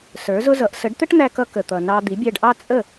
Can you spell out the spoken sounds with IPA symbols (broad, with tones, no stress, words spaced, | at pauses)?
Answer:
sə˞˩˥zʊ˥zʌ˩˥ʔ sə˩˥ɖt̪ə˥ʈn̪æ˧kʌ˧ kə˩t̪ʌ˩ nɑ˧d̪i˩˥bʲæ˧ɖʔɑ˥ t͡sʼə˥˩